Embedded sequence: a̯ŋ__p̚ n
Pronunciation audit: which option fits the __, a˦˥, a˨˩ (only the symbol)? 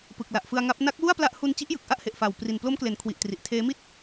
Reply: a˦˥